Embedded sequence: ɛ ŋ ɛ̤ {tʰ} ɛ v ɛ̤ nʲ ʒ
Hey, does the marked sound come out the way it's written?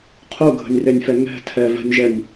yes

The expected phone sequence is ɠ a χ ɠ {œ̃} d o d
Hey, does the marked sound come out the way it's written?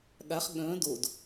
yes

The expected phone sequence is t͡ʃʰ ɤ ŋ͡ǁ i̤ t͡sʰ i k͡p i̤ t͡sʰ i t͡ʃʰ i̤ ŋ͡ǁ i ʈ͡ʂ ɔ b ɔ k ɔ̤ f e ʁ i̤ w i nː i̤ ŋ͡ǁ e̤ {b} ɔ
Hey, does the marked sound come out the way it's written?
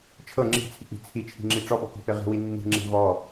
no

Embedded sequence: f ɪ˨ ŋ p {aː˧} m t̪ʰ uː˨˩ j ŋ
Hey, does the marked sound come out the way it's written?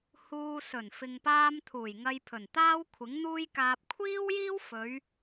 yes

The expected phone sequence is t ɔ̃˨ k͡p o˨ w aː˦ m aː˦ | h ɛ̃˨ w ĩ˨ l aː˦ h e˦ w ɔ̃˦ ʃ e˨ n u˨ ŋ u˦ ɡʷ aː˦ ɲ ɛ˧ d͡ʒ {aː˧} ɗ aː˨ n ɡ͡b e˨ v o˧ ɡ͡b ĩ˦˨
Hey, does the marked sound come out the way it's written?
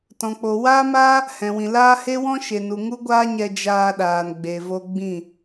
yes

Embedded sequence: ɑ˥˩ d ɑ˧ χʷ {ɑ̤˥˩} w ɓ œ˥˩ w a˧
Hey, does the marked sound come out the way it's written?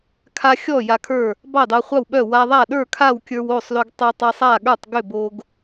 no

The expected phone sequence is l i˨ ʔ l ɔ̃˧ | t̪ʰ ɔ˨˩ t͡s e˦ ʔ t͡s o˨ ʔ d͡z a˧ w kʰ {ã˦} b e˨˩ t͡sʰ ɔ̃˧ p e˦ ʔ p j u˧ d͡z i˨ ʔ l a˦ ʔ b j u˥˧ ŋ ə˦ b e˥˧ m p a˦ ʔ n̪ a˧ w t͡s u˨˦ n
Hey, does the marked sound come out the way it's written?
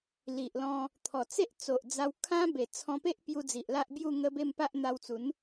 yes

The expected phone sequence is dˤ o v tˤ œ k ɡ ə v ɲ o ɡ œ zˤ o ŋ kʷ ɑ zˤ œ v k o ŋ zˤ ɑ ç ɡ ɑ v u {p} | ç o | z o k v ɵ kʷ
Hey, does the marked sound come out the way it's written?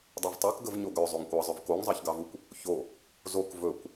no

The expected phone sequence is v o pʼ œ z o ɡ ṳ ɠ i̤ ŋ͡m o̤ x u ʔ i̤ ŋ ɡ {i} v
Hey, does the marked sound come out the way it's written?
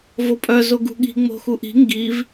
yes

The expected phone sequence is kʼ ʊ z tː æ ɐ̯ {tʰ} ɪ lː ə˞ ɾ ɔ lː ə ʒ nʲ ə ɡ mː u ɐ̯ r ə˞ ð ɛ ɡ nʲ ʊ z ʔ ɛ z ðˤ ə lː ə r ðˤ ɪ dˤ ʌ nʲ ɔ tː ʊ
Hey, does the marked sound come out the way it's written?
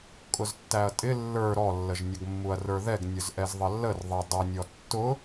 no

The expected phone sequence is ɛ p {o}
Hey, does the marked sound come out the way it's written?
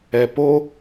yes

